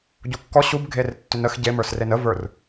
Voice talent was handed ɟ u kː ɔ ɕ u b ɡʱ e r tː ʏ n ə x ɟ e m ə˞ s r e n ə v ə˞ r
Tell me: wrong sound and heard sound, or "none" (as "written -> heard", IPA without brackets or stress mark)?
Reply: none